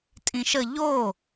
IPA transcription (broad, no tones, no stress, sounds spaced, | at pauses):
tʼ ĩ ʃ ə ʎ o